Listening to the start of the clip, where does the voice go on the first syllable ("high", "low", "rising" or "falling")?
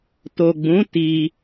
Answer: low